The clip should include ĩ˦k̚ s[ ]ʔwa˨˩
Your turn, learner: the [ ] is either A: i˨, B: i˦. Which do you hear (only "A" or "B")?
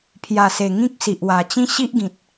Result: A